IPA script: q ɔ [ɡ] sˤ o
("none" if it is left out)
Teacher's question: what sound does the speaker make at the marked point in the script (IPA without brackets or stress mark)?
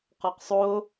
q